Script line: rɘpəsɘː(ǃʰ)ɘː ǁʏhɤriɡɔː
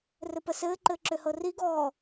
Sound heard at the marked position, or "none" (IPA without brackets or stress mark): ǃ